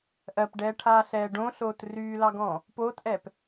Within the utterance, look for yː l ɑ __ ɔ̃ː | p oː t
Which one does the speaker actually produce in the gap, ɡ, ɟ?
ɡ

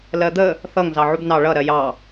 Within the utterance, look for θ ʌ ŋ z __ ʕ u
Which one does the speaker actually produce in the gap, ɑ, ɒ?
ɑ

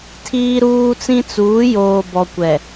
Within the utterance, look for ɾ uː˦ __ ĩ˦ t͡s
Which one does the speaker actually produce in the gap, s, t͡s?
t͡s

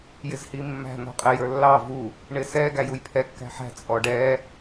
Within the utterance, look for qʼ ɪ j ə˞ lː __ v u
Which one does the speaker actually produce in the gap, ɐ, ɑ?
ɑ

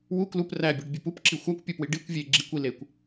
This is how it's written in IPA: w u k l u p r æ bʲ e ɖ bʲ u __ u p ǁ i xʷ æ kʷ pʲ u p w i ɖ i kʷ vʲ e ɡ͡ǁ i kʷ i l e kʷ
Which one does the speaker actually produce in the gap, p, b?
p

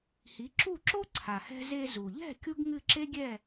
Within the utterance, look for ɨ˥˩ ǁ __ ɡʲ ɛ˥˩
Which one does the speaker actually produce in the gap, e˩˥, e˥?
e˥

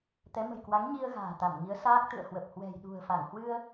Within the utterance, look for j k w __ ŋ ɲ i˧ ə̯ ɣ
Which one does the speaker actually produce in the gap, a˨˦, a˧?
a˨˦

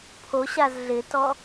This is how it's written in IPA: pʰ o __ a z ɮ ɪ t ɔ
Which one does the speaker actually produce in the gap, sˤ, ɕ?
ɕ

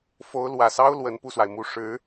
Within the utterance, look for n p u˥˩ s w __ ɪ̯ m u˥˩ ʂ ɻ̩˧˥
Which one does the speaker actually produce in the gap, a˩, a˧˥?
a˩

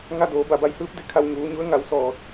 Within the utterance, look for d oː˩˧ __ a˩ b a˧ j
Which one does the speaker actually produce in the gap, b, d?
b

